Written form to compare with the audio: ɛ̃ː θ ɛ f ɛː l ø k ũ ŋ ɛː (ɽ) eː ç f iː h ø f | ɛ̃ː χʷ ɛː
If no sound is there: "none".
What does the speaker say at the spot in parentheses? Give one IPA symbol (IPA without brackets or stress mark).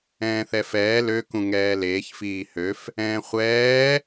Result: l